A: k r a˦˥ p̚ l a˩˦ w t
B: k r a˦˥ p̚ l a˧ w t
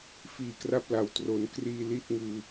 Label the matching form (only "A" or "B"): A